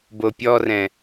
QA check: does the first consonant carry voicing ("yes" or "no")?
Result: yes